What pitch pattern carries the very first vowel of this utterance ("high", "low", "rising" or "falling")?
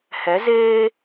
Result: rising